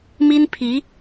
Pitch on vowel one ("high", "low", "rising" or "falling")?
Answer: high